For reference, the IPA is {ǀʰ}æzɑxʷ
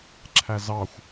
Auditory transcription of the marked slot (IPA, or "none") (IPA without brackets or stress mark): ǁʰ